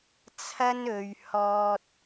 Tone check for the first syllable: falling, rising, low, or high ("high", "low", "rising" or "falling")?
high